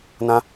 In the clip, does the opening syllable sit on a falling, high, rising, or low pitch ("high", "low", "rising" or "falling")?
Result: high